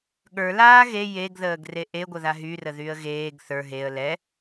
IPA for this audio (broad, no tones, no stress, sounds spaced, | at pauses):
ɠ ə˞ l aː ɣ e j e ɡ ð əː ɡ r e ʔ e ɡʷ ə ð a ɦ y r ə ð y ə̯ ɣ eː ɡ θ ə˞ ɦ e ə̯ l ɛ